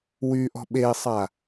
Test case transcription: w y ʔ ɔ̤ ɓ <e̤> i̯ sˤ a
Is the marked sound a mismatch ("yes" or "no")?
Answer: yes